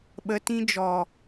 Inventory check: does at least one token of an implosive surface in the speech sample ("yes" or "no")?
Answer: yes